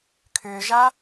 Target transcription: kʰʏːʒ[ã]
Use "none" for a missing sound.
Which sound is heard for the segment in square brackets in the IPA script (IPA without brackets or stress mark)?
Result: a